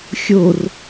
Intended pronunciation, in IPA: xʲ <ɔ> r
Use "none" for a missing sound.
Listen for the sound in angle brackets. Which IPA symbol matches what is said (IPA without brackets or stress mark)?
o